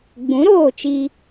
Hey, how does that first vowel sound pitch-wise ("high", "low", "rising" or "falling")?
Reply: rising